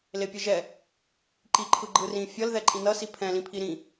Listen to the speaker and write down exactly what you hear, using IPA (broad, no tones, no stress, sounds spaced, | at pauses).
l e pʲ ɯ ʒ ɛ | ǃ i ǃʰ ɯ ɡ͡ǃ ɯ r ĩ fʲ ʌ l ð ɛ ǃʼ ĩ n ʌ s i pʰ ɛ̃ l ĩ pʰ i ɾ ĩ